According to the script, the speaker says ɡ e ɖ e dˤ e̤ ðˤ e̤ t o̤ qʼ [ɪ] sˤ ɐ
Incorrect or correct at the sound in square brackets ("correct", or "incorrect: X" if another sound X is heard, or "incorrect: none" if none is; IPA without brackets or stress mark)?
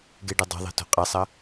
incorrect: ɛ